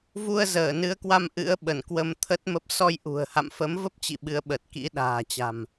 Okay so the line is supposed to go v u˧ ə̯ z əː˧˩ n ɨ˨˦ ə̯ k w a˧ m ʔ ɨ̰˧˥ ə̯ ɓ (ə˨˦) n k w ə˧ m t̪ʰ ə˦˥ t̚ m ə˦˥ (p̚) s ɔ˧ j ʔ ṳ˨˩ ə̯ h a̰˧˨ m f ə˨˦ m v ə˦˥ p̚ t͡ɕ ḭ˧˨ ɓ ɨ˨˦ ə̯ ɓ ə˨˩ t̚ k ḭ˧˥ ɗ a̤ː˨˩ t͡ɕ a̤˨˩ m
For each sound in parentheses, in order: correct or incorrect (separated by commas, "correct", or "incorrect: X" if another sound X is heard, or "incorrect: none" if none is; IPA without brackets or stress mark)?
incorrect: ə˧˩, correct